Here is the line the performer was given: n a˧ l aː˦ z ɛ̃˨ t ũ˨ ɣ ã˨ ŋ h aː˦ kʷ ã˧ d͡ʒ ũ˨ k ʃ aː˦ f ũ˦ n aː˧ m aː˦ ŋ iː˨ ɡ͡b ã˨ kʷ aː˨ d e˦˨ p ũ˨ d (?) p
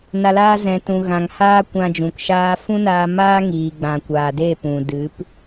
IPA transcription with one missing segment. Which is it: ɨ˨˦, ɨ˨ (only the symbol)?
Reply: ɨ˨˦